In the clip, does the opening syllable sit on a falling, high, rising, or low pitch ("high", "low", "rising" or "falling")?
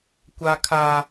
high